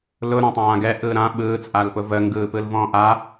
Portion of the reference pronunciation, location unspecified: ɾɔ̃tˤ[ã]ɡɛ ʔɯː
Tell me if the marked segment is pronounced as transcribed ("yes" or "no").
no